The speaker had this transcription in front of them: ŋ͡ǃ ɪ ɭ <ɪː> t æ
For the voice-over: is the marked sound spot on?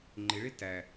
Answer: no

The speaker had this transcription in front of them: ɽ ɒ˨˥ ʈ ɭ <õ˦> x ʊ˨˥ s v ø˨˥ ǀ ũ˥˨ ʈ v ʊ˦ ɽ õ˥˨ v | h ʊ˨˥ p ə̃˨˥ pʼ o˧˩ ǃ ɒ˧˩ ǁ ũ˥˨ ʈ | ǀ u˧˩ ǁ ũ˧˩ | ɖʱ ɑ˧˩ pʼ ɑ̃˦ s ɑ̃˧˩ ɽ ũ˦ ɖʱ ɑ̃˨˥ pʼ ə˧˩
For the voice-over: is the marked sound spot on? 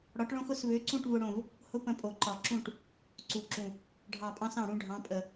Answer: yes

